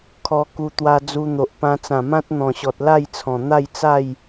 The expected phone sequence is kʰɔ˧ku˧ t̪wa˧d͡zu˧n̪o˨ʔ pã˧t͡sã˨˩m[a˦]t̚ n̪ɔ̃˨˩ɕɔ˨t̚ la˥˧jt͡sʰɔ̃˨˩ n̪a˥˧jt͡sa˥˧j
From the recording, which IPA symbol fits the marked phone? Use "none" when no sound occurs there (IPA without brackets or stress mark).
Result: ã˦